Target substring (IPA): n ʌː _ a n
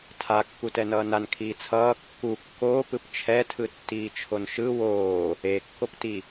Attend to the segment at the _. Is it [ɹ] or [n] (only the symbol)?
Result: n